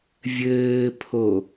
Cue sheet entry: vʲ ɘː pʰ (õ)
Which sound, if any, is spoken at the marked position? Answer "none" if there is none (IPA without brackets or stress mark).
o